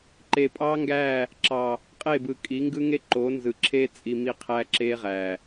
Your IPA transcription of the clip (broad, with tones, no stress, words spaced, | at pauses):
ǃe˨pʼɑː˦ŋɡæː˦˨ | ǁɑ˨ | qʼe˦˨bɯ˨ kʼi˨˦ŋɡɯ˦ŋe˦ ǃoː˨˦nzɯ˨ǁʰeː˦ t͡sʼi˧mi˦ qʰæ˧ǁeː˧ʁæː˨